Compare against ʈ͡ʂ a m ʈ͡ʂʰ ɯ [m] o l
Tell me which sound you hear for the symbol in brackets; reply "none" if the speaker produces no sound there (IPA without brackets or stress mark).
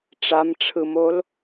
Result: m